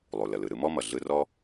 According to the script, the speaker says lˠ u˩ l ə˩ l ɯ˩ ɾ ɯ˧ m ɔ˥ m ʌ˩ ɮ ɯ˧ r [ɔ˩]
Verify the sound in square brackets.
incorrect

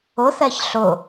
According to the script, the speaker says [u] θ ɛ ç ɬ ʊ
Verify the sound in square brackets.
incorrect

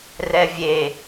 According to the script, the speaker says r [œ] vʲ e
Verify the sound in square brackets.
incorrect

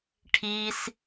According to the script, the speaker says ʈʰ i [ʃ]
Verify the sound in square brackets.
incorrect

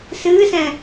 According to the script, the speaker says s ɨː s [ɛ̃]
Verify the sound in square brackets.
correct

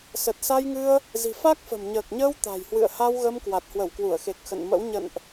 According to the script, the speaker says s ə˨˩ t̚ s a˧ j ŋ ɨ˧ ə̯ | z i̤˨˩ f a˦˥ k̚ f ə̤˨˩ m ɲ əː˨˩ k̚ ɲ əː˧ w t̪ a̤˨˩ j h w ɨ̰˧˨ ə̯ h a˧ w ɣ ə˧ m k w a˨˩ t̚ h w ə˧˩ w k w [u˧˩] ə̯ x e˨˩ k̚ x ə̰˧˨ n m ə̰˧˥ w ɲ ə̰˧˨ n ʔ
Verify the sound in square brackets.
correct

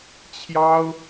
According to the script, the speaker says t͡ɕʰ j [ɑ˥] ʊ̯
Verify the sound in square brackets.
correct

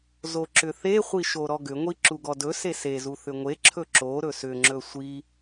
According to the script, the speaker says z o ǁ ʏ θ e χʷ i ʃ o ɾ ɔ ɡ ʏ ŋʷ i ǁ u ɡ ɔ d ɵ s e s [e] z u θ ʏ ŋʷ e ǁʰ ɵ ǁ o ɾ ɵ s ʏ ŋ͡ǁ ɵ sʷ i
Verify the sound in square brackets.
correct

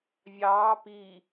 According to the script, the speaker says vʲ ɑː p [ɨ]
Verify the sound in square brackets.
incorrect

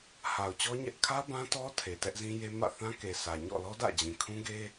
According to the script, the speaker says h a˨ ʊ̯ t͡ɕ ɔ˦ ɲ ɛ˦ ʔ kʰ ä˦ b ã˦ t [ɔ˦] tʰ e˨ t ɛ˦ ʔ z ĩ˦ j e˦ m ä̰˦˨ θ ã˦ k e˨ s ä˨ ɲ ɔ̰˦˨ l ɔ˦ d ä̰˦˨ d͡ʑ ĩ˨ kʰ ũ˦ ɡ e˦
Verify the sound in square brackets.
correct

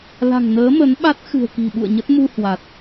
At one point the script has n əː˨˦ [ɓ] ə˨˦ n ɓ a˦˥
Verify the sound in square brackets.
incorrect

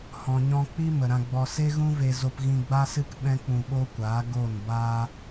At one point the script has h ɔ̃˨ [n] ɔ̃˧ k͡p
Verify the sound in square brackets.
incorrect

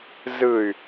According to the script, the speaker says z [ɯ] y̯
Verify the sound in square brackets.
correct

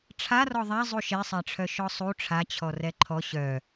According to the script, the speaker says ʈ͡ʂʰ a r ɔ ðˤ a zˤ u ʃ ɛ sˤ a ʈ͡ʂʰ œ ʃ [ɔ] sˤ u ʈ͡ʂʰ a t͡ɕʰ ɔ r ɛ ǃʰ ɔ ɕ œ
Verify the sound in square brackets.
correct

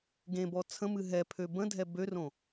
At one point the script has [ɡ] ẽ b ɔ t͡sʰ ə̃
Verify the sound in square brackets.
correct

